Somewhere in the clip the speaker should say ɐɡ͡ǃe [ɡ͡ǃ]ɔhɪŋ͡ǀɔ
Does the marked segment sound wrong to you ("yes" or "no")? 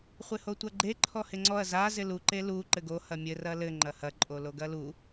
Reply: yes